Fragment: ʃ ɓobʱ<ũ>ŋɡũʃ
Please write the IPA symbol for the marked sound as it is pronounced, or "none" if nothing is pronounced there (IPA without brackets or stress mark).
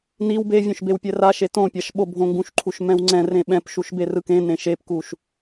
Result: õ